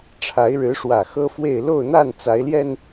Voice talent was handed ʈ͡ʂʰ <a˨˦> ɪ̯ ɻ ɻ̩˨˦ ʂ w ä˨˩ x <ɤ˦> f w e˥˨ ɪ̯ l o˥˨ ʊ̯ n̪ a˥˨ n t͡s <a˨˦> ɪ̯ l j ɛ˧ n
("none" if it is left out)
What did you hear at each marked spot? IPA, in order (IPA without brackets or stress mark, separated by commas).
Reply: a˨˦, ɤ˦, a˨˦